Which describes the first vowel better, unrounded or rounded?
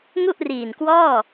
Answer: rounded